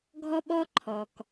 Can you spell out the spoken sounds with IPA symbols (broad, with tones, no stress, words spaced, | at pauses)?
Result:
ɡʱɔ˦ɓɔ˦ ǃʰɔ˨k